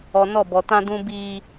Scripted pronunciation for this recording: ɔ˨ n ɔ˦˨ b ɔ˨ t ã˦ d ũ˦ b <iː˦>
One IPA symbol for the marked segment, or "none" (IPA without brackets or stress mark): iː˦